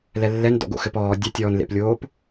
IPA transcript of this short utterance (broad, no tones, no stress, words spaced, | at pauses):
lɛlːɛn dɔ̰ɡo̰xɘpɔː dʲɛtʲɔːnlḛplʲoːp